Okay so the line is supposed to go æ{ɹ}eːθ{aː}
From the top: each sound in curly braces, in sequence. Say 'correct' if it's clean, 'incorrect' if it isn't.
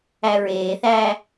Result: correct, incorrect

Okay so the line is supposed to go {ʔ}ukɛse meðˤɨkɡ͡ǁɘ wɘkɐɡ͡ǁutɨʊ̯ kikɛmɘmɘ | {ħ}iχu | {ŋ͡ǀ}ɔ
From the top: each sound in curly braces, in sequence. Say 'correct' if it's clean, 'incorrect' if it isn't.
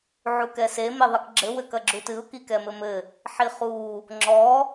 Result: incorrect, correct, incorrect

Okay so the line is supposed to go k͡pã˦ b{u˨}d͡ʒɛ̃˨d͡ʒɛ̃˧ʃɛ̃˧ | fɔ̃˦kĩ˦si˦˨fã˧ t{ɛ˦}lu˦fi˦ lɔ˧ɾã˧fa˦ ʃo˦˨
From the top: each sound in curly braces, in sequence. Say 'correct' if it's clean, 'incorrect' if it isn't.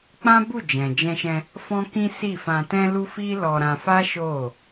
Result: incorrect, incorrect

